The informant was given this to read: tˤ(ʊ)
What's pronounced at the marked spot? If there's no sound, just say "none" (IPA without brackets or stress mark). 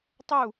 u